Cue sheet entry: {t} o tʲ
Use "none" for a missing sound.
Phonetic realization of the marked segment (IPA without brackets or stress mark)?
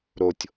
ɾ